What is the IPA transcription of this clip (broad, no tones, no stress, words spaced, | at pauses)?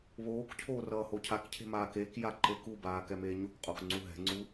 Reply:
βoːkcʰoː rʌːhocʰakcʰe̤ maːkekja ǃekubaː kɛmeːɲokqʼok ŋ͡ǀuɦɛ̤ŋ͡ǀu